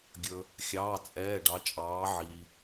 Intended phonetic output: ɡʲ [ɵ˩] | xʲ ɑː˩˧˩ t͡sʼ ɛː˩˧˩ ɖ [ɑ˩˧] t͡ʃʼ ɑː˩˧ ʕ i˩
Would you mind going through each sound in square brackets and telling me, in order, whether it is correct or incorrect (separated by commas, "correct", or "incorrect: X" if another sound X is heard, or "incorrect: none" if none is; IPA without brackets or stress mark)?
correct, correct